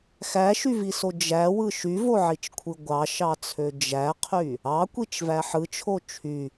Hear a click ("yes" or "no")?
no